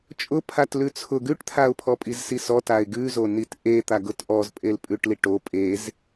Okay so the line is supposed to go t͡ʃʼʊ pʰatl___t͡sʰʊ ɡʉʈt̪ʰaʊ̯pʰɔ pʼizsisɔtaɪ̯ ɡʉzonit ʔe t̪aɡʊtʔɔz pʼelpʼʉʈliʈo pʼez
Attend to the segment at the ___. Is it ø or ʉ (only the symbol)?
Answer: ʉ